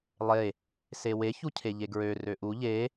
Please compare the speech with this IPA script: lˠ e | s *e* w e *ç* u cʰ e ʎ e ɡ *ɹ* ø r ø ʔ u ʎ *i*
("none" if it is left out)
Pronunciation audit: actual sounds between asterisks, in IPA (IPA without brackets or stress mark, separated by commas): e, ç, ɹ, e